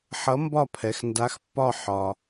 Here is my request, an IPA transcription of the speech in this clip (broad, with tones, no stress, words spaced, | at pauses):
ħʌ˨˥mbɒ˦˨ pʰɛ˩˧xnda˨˥xpːɒ˦˨ ħɒ˩